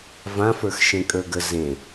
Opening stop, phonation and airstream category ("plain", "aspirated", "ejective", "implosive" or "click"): ejective